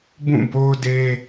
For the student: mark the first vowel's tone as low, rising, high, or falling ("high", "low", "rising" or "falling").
falling